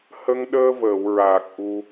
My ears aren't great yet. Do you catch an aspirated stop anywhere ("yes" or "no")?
no